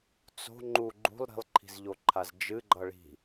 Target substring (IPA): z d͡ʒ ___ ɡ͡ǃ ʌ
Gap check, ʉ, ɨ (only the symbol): ɨ